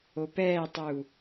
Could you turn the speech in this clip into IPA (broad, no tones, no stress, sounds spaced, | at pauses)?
o p ɛː tˤ u